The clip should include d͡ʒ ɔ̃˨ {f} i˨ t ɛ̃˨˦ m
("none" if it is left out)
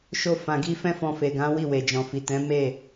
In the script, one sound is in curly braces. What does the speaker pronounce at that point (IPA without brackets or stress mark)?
f